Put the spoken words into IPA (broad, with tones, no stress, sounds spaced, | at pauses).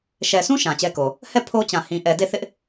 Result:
ʃ ɛ˨ s ũ˦ ʃ ã˨ t͡ɕ ɛ˦ k o˨ | h ɛ˦˨ pʰ o˦ t͡ɕ ã˨ h ĩ˨ ʔ ɛ˨ d e˦˨ θ ɪ˦ ʔ